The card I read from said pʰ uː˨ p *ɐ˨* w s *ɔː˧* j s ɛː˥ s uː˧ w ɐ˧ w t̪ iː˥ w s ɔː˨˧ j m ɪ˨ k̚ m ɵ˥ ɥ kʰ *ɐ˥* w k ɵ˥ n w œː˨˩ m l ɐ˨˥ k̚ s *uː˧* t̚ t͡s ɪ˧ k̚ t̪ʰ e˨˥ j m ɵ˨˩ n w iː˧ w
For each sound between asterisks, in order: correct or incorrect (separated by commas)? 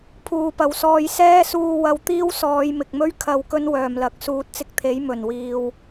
correct, correct, incorrect, incorrect